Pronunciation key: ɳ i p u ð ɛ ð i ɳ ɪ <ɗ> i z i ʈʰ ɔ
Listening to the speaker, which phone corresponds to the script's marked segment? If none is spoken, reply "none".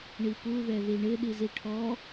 ɗ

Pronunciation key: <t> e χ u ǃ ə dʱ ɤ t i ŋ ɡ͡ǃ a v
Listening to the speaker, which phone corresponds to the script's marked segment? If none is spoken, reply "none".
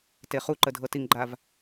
t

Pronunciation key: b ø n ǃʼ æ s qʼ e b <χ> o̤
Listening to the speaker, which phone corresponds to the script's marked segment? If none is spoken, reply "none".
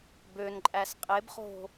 χ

